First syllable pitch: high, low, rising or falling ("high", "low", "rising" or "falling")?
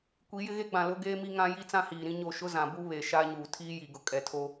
rising